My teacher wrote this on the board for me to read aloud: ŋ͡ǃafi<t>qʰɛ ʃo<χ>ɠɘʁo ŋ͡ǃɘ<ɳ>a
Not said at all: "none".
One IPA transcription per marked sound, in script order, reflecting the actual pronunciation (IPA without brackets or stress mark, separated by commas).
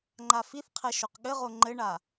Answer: θ, q, ɳ